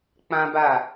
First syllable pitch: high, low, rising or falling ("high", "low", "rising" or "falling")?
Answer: high